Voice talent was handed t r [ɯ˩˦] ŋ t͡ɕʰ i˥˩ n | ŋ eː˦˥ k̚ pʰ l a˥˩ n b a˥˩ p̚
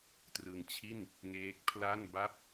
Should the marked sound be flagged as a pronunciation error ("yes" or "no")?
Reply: yes